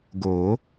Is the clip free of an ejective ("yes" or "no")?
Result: yes